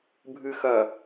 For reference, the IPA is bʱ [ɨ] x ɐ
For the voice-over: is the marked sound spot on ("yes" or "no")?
yes